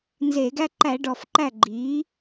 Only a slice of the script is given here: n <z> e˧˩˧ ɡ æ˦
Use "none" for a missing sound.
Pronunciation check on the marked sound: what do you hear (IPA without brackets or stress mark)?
z